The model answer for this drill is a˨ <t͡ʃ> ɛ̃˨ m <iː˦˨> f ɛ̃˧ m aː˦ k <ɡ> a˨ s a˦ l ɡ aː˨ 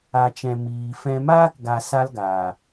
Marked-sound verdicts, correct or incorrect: correct, incorrect: iː˨, correct

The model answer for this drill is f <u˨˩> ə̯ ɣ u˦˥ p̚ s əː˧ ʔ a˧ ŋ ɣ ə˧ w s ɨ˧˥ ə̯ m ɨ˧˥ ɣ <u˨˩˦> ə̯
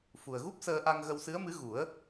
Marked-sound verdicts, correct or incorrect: correct, correct

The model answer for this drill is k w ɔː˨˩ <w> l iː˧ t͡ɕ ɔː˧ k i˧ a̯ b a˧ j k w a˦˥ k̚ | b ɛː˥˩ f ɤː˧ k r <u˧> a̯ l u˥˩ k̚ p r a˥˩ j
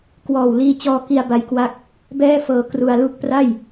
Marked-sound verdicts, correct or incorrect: correct, correct

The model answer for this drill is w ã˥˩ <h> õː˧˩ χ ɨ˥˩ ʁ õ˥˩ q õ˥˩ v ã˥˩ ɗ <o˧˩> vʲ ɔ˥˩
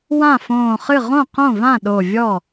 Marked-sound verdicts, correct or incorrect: incorrect: f, correct

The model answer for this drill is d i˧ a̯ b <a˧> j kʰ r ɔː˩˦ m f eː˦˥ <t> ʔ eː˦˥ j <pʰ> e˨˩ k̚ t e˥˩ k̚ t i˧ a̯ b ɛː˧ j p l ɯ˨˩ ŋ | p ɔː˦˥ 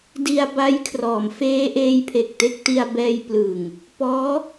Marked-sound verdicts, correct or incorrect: incorrect: a˦˥, incorrect: none, correct

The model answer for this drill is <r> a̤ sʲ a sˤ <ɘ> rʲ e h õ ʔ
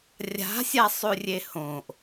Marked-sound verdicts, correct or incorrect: incorrect: rʲ, incorrect: ʉ

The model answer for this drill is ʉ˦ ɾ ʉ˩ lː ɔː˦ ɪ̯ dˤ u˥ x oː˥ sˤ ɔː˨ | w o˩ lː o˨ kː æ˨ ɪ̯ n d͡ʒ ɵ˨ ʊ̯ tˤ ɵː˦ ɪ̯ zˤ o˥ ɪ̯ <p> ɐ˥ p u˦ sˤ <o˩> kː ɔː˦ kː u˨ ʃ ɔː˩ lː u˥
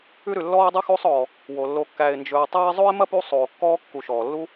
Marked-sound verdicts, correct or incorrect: incorrect: m, incorrect: oː˩

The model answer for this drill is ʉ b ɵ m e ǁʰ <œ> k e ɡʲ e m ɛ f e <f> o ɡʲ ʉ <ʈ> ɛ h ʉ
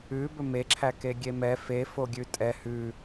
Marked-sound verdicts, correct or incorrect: incorrect: æ, correct, incorrect: tʼ

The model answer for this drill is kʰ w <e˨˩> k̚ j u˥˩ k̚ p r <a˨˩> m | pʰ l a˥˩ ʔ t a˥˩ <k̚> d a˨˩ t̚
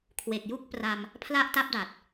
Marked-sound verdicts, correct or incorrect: correct, incorrect: a˧, incorrect: p̚

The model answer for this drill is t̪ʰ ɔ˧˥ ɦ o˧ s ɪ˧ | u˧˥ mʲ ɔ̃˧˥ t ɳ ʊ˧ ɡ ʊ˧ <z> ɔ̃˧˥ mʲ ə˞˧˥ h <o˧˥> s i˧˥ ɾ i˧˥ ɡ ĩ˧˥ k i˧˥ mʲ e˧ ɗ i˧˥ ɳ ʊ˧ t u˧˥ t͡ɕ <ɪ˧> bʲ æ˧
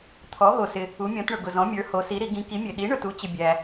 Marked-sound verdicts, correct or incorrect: correct, correct, correct

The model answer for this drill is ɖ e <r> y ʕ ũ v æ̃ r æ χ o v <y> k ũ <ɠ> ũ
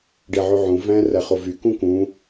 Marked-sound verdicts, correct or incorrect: incorrect: ʕ, correct, incorrect: k

